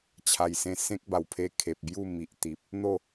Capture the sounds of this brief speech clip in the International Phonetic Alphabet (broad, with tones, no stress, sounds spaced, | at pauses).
t͡ɕʰ a˨˩ j s ẽ˧ s ẽ˦ k̚ b a˨˩ w pʰ e˧ kʰ e˨ p̚ b j u˥˧ m i˨ ʔ t̪ i˨ p̚ | n̪ o˥˧